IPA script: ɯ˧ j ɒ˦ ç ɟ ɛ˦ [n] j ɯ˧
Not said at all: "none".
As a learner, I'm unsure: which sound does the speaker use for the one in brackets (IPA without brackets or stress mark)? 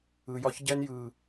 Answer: n